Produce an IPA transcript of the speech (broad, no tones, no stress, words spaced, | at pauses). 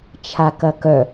t͡ʃʰakɐkœ